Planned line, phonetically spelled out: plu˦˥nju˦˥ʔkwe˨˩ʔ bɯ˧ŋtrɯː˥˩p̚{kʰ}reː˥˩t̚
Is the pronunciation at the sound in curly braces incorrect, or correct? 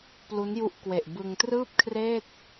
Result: correct